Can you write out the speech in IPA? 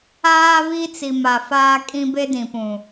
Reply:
aː˦ β i˦ t͡s i˨ m a˨ f aː˦ kʼ ĩ˦ b e˦ d ĩ˨ p ũ˨

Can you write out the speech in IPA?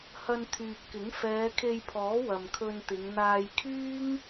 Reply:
h ɐ˧ n t̪ʰ yː˨ p̚ k ɪ˨˥ ŋ f ɛː˨˧ kʰ e˧ j pʰ ɔː˨˥ w ɐ˨ m kʰ ɵ˧ n t̪ ɪ˨˧ ŋ n̪ aː˧ j kʰ yː˥ ŋ

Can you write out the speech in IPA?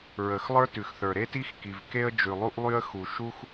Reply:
ɹ ə˩ x lˠ ə˞˥ t ʉ˩ x θ ə˞˩ ɾ e˥ t i˥ x k i˩ v k e˥ ə̯ d͡ʒ ʉ˩ lˠ u˥ ʔ lˠ y˥ ə̯ x u˩ ʃ u˥ x

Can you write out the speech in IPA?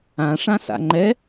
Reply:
ã ʂ ã s a̰ ŋ͡ǃ ɛ

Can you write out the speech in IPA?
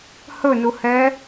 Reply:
h ɵ n u h ɛ

